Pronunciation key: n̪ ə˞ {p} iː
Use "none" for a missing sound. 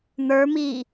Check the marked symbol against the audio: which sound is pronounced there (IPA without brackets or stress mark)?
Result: m